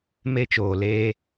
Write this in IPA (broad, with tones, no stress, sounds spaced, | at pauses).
m e˦ t͡ʃ oː˨ l eː˦